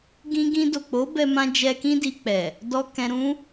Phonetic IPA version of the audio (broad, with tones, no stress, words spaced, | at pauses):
ɡĩ˧ɡĩ˧do˨k͡po˨˦ bɛ˦mã˦ d͡ʒɛ˧kĩ˦di˧ k͡pɛ˨ | dɔ˧ kɛ̃˧ɾũ˦